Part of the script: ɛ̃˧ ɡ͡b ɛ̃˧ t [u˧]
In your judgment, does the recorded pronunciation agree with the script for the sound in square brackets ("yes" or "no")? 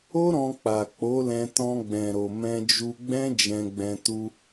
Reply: yes